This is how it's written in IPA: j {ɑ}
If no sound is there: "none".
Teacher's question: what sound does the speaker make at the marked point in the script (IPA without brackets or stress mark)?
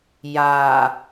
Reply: a